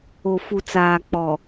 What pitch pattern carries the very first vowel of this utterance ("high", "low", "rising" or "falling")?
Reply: low